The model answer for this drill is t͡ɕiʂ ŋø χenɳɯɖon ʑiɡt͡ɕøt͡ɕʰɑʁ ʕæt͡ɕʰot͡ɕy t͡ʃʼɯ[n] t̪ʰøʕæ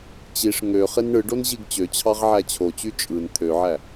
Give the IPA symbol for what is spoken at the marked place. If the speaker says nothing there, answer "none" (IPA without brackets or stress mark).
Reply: n